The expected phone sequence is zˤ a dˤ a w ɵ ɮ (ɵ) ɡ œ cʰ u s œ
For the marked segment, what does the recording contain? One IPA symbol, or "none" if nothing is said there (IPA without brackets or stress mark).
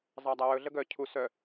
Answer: ə